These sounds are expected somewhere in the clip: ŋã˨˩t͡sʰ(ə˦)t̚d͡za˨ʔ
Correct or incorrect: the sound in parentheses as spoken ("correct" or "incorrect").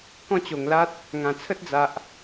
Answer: correct